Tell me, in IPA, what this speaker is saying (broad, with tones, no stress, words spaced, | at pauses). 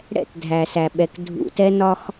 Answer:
ɽɛ̰˦˨t dʱæ˨sæ˨ɓɛ˨k dʱṵ˨ tɛ˦nɒ˦x